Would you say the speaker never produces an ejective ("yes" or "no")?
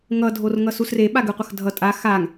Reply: no